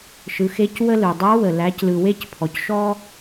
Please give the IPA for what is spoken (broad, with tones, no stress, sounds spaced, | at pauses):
ʃ ɯ˩˧ x e˧˥ c w ə˧ l ɯ˩ dˤ a˧˥ w ə˩ l æ˩˧ c l ɯ˩ w e˧ c pʰ ɔ˩ c ʃ ɔ˧